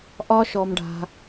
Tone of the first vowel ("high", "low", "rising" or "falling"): high